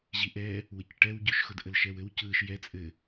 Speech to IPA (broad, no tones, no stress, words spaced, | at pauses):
ʑiʔɛ | wəcʈɛwɟʉʃxʊd ʔəlʃɛwɘw cɯʃ jɛ t͡sʼɘ